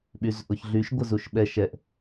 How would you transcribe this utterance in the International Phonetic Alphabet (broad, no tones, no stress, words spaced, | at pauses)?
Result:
ɓyzʔʊç ɮyʃɡʷə zuʃɓɛ ʃɛʔ